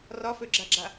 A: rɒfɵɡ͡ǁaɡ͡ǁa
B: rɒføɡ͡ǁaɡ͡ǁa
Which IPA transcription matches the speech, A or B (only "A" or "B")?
B